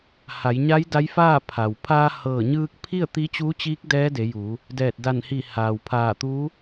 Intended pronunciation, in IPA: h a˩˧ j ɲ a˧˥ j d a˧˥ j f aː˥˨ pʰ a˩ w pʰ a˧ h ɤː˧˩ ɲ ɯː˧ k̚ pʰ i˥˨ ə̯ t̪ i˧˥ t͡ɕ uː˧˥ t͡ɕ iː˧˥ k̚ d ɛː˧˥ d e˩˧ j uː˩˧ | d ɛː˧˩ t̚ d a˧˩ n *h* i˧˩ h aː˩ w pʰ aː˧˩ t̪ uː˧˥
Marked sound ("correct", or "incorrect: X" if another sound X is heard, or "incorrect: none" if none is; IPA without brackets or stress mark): correct